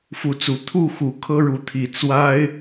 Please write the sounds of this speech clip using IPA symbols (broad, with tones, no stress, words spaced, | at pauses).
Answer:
fu˨˦t͡su˨˦ t̪ʰu˥˨xu˨˩ kʰɤ˦ɻu˨˦t̪ʰi˨˩ t͡swa˦ɪ̯